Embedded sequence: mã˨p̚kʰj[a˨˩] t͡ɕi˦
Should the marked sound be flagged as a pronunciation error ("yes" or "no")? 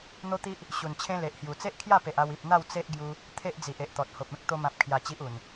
no